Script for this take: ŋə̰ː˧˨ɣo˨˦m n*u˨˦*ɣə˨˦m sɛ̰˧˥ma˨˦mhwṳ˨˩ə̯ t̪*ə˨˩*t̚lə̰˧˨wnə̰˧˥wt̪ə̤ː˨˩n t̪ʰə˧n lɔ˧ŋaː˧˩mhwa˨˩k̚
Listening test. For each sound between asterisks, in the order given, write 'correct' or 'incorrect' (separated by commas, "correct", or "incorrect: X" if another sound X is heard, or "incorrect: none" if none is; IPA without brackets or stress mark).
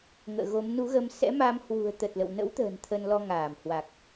correct, correct